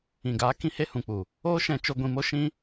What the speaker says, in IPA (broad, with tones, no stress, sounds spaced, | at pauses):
ĩ˨ ɡ aː˨˦ k ĩ˦ h e˦ h ũ˨ k͡p u˨ | oː˦ ʃ ɛ̃˧ t͡ʃ o˧ ɡʷ ĩ˧ m o˦ ʃ ĩ˦